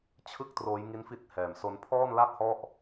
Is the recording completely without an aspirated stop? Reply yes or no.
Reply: no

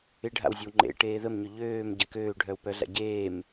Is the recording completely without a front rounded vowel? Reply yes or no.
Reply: no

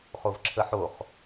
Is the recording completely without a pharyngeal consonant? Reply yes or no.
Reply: no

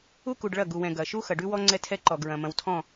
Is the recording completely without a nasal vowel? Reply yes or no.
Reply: no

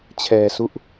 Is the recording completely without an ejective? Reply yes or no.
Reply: yes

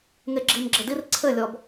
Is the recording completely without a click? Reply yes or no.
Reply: no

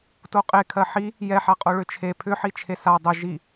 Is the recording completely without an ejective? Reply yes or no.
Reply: no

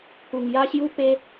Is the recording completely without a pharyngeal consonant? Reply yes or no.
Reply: yes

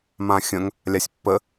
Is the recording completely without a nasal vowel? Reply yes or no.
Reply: no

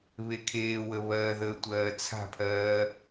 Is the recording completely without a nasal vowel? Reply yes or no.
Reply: yes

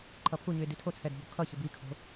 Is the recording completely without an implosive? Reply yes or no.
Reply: yes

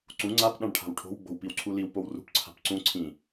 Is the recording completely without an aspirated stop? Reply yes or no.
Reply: no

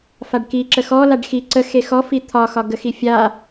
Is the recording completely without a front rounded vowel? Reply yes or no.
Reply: yes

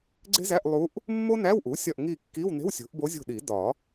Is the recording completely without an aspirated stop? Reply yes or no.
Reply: yes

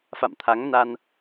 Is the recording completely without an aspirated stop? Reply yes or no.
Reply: no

